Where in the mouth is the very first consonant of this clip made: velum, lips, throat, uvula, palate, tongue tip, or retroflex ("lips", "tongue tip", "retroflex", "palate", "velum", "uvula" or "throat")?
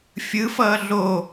lips